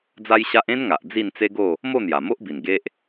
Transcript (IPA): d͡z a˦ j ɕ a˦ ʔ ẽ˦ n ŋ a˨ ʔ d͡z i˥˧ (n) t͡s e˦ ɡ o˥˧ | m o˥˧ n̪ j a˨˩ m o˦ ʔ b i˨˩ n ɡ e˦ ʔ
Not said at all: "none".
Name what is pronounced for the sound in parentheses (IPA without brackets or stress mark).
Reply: n